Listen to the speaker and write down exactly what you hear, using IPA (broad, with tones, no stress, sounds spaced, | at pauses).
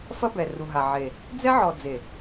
f ɐ˦ b ɛ˨ r u˨ ɦ a˨ ʕ e˨ | d͡z ɛ˦ ʕ ɔ˨ d͡z e˨